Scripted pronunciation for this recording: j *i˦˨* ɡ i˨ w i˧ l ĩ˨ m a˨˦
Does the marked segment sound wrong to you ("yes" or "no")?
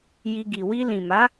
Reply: yes